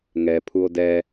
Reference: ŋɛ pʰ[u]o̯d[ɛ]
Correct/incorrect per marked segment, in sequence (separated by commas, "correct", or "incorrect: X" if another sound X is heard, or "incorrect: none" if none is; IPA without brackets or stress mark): correct, correct